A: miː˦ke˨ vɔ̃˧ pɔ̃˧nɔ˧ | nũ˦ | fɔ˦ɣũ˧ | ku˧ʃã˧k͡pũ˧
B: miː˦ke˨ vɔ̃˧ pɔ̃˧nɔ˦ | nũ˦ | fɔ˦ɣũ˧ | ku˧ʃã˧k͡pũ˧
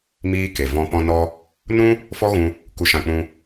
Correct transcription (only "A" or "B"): A